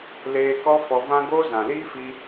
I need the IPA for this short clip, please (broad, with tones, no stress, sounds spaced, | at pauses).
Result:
l eː˧ k ɔ˦ f ɔ˧ v ã˦ ɡ oː˦ z ã˨ l iː˦ f i˧